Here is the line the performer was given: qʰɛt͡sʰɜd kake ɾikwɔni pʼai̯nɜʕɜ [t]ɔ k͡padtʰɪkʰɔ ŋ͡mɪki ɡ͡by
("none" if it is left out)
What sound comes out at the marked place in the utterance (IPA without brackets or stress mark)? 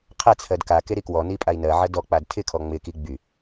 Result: d